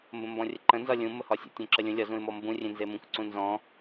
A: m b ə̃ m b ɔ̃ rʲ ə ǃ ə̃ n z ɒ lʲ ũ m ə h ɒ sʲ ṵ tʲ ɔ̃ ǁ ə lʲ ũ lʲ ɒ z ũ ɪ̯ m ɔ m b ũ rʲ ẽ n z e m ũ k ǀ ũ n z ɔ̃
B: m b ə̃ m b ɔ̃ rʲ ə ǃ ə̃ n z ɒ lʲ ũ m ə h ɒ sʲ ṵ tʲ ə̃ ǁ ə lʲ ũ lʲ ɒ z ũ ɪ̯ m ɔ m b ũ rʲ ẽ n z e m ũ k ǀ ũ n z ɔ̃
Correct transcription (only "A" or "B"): A